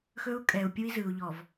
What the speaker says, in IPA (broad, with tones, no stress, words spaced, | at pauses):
xɵ˦u̯kʼɛ˨u̯ pʲu˦i̯zɯ˨u̯ʎɔ˨v